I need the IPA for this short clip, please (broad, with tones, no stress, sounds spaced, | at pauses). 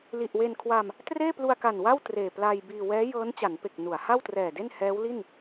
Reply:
l i˨˩ ʔ w e˧ n kʰ w a˧ m | t r eː˥˩ p l u˧ a̯ k a˨˩ n w a˥˩ w t r eː˨˩ p l a˧ j b iː˧ w ɛː˦˥ j ɤː˦˥ n t͡ɕ a˩˦ n p e˨˩ k̚ n u˩˦ a̯ h a˥˩ w t r ɛː˨˩ d e˥˩ n h ɛː˦˥ w l i˥˩ n